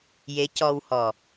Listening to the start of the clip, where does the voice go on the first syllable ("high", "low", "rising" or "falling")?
rising